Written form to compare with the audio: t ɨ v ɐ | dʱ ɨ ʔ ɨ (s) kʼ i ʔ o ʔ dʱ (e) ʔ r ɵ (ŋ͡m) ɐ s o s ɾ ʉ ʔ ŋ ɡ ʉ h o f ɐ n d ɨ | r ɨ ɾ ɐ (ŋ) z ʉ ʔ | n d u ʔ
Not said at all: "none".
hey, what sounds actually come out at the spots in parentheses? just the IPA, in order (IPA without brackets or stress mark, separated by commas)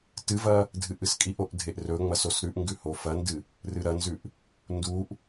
s, e, ŋ͡m, n